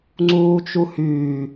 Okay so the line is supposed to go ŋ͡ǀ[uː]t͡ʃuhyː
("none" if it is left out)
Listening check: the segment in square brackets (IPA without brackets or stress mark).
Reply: uː